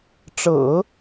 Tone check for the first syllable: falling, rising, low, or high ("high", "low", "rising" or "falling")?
low